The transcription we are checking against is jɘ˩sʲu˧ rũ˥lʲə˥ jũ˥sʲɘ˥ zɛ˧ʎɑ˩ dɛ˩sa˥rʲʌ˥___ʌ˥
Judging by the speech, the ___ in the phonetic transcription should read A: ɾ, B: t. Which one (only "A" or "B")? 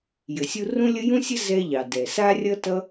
B